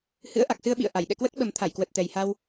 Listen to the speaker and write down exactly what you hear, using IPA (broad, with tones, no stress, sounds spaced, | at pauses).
h ɨ̰˧˥ ə̯ ʔ a˨˩ k̚ s ɨ˧ ə̯ ɓ ḭ˧˨ ə̯ ʔ a˧˩ j ɗ ɛ̰˧˨ k w ə˦˥ t̚ ɓ ə˨˩ m t̪ʰ a˧˩ j k w ə˨˩ t̚ t̪ ɛ˨˩ j h a˧ w